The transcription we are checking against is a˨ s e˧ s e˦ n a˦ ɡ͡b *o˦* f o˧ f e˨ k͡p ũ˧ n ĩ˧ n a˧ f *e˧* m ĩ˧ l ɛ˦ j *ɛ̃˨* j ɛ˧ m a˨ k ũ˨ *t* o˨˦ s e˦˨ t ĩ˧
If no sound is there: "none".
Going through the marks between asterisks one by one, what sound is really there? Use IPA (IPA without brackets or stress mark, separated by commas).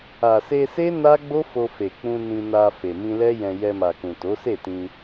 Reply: o˦, e˨, ɛ̃˧, t